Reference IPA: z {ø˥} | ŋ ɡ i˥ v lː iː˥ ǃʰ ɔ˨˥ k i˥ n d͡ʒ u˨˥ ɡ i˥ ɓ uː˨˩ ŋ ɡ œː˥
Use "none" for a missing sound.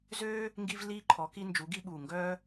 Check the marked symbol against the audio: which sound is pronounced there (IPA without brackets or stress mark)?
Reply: øː˥